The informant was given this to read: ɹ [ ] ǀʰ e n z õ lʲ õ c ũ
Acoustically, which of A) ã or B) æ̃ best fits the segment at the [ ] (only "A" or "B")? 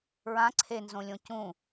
A